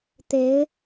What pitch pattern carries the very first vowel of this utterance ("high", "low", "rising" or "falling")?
rising